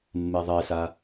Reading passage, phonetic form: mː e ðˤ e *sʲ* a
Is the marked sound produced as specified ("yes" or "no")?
no